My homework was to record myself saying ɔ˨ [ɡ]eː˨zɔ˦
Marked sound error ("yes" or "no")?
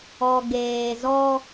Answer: no